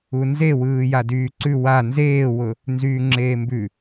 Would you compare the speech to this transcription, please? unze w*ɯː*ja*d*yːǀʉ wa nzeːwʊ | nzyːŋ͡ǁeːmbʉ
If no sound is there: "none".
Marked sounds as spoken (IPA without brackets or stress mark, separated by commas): ɯː, d